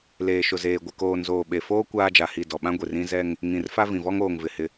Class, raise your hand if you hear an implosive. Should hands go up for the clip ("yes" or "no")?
yes